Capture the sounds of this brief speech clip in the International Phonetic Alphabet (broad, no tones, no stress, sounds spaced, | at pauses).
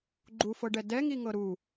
ɡ͡ǃ u f ɤ ɖ ɛ d ɛ ŋ i ŋ ɤ ɾ u